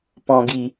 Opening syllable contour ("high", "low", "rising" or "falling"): low